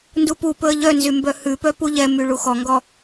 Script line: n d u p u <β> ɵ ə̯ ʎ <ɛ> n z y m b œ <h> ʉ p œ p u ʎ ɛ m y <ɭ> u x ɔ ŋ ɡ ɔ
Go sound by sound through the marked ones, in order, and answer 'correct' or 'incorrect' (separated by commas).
incorrect, incorrect, correct, correct